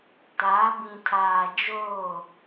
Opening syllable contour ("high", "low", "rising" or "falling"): rising